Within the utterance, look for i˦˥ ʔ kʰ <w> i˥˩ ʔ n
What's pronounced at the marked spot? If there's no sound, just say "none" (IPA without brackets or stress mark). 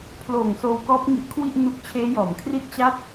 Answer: w